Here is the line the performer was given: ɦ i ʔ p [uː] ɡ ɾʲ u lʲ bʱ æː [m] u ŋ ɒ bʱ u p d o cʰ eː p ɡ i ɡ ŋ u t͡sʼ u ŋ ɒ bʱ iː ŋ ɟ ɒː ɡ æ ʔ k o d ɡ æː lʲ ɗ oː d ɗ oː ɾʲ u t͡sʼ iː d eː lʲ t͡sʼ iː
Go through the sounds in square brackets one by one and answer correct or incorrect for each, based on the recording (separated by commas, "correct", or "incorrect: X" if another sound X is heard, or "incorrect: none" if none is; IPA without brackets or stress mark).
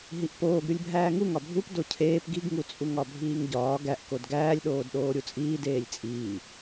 incorrect: oː, incorrect: ŋ